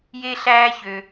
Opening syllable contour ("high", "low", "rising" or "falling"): high